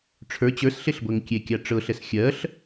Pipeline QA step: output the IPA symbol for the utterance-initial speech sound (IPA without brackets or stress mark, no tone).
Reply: ʈ͡ʂʰ